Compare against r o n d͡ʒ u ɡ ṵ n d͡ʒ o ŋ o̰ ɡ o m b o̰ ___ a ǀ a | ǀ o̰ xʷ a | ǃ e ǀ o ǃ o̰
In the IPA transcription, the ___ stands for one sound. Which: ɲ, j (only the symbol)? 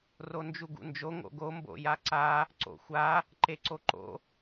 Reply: j